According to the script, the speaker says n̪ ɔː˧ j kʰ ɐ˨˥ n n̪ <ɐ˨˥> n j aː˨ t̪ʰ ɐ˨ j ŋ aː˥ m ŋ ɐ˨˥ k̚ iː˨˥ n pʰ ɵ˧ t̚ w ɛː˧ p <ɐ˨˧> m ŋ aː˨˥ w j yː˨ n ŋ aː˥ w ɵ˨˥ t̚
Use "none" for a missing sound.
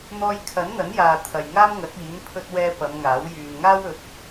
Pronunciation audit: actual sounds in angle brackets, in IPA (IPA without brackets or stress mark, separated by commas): ɐ˨˥, ɐ˨˧